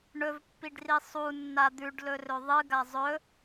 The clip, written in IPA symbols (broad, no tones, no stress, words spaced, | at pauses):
ɳɵvpːiɖri sˤunːa d̪ʉɖlɵrɵ ðˤɨɡa zˤɵ